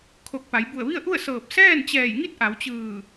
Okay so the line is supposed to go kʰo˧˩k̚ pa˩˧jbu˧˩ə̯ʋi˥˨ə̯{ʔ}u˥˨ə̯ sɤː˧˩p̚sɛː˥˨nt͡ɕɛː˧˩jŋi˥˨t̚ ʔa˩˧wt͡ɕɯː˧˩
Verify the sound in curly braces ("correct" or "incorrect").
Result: correct